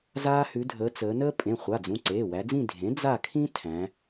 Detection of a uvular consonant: present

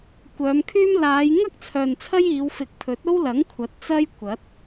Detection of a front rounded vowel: present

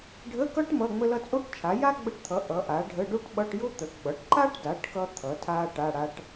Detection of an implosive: present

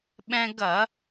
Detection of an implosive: present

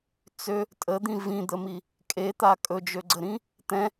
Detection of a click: present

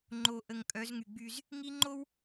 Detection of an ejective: present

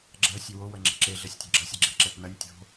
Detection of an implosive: absent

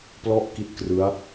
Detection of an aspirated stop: absent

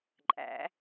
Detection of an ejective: present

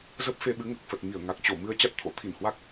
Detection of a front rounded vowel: absent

